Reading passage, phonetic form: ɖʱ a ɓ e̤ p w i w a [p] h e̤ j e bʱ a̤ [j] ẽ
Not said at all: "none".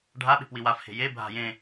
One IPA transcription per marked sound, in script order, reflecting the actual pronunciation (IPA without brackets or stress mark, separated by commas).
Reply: f, j